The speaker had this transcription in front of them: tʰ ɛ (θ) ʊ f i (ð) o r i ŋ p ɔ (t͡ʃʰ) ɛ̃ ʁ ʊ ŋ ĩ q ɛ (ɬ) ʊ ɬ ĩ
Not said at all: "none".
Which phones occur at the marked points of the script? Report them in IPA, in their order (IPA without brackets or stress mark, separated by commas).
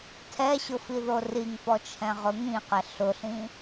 ɕ, ð, t͡ʃʰ, ɬ